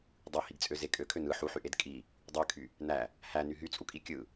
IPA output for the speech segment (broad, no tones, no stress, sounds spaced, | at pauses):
dˤ ɯ h i ɡ t͡sʼ ø z e kʼ ø kʰ ø n ɯ ħ u ħ y ʔ e d kʼ i | dˤ y kʰ y | n æ | h æ n y ɦ y t͡sʼ u kʼ i kʲ ɯ